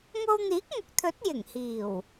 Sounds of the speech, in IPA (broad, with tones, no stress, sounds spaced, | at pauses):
ŋ o˧ w n̪ iː˨˥ k̚ ŋ ʊ˨˥ k̚ t̪ʰ ɵ˨˥ t̚ j ɪ˨˩ ŋ h iː˨˩ w